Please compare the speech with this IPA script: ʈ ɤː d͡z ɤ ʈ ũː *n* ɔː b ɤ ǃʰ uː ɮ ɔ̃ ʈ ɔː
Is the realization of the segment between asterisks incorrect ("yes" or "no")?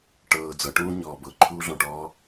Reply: yes